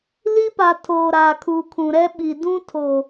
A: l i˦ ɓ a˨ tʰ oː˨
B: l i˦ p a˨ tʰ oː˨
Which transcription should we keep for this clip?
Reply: B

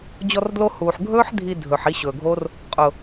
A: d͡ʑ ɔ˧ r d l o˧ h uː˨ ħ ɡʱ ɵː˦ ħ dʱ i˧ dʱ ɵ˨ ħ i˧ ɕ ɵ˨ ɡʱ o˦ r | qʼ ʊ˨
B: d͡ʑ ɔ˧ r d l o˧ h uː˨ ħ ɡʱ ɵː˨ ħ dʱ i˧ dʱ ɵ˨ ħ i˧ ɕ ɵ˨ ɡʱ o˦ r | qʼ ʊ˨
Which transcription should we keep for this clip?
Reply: A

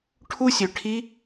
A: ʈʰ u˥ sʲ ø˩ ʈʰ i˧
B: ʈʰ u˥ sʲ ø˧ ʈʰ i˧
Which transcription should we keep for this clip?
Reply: B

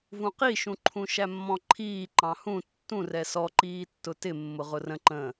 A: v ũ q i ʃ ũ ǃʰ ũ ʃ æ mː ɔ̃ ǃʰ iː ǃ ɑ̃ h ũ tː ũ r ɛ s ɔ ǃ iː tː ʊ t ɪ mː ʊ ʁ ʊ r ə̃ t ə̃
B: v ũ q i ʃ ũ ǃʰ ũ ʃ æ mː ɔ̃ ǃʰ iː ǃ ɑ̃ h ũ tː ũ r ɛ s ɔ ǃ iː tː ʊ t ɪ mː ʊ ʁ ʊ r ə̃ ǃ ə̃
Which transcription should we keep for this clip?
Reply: B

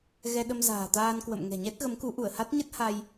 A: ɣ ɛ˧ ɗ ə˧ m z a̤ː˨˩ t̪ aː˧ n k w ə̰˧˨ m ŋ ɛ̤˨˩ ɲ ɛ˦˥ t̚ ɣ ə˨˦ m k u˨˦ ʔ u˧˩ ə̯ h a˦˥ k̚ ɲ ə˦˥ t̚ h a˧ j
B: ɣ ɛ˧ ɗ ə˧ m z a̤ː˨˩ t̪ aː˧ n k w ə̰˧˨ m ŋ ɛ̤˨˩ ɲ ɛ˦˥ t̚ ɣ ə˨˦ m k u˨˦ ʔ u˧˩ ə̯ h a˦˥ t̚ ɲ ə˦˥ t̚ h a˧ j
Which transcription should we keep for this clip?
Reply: B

